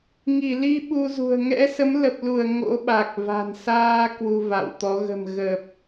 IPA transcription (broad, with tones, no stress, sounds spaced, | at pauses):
ŋ i˧˩ l i˧ ɓ u˧ z ṳ˨˩ ə̯ ŋ ɛ̰˧˥ s ə˨˦ m l ə˨˩ p̚ l u˧˩ ə̯ ŋ o̰˧˥ ɓ a˨˩ k̚ v a̤˨˩ n s aː˧ k w u˧ v a̰˧˨ w t̪ ɔ˨˦ ɣ ə̤˨˩ m ɣ ə˨˩ p̚